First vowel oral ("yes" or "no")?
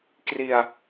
yes